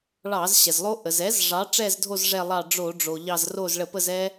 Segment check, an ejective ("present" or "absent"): absent